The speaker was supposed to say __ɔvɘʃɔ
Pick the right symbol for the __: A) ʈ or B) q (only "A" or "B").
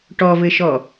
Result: A